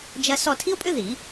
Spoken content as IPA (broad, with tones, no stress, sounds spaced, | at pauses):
d͡ʒ ɐ˥ s ɔ˦˨ tʰ i˥ o̯ pʼ ʏ˥ ð i˨˩˦